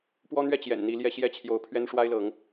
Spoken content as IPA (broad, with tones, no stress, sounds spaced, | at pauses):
p w ɔ˦ n̪ ɥ ɛ˥˨ t͡ɕ j ɛ̰˨˩ n n̪ i˨˦ l j ɛ˧ ɕ j ɛ˦ t͡ɕʰ j o˨˦ ʊ̯ pʰ ɥ ɛ˦ n ʂ w a˦ ɪ̯ l ɤ˨˦ ŋ